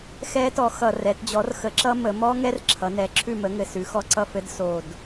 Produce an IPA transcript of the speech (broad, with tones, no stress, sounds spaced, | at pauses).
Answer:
x ɛ˦˥ t ɔ˩˥ x ʌ˨˩ r ɛ˩˧ t d͡ʑ ɔ˩˥ r x ə˩˥ ǁ ʌ˦˥ m ə˩˧ m ɔ˦˥ ŋ ɛ˦˥ r ǁʰ ʌ˩˧ n ɛ˩˥ ǁʰ ʉ˥˩ m ə˩˥ ŋ ɘ˨˩ s ʉ˩˧ x ɔ˦˥ ǀ ʌ˥˩ f ɘ˦˥ d s o˨˩ d